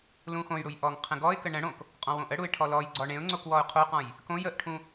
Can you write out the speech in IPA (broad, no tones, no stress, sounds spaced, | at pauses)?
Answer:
l ũ x õ j ɽ u j ʔ ɔ ŋ qʰ ə̃ ɡ ɔ ɪ̯ k ə ɳ ə̃ ɽ õ k | qʼ ɔ̃ w õ ʔ ə ɽ u ɪ̯ ʈʰ ɔ l ɔ j ɡ͡ǀ ɔ ɳ ẽ ʊ̯ ŋ͡ǀ o k w ɔ ʊ̯ qʰ o q ɔ̃ j | k õ j ə ʔ ʈʰ ũ